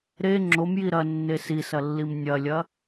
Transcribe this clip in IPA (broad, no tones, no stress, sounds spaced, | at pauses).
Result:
ɾ e ŋ͡ǁ o m j i ɾ ɐ nː e s i s ɐ lː i m nʲ ɐ lʲ ɐ